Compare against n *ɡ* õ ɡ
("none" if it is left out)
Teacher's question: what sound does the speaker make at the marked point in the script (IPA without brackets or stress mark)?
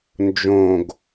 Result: d͡ʒ